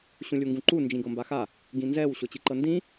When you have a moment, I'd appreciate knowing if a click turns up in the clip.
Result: yes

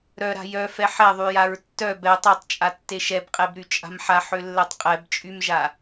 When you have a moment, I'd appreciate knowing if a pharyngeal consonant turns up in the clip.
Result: yes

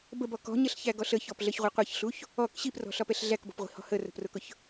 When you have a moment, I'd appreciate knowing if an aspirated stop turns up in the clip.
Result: no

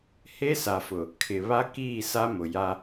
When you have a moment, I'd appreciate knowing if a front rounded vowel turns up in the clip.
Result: no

